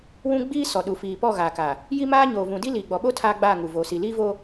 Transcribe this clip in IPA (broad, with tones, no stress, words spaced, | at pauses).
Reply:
wũ˦ɡ͡biː˦ sɔ˨ɗu˨ fiː˨ pɔ˦˨ɣaː˨kaː˨ | ji˦maː˦ ɲoː˨vũ˨di˦liː˨ ɡ͡bɔ˨ɓo˦ tʰaː˦ɡ͡baː˦˨ŋu˨ vo˨si˨ liː˦voː˦